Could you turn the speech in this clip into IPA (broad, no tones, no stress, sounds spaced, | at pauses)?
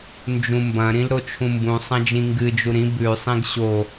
n d͡ʒ ũ m b ɐ̃ ɾ ĩ l ɾ o t͡ʃʰ ũ m b ũ sˤ ɐ̃ d͡ʒ ĩ ŋ ɡ ɨ d͡ʒ u ɾ ĩ b ʉ sˤ ĩ ɡ ɕ o